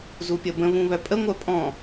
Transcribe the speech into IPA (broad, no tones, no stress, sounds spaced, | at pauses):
z u pʲ ə b ə̃ β ũ β œ pʼ ə ŋʷ œ pʼ ɔ̃